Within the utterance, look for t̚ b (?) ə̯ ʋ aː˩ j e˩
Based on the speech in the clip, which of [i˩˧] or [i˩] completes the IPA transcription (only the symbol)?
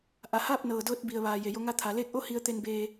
i˩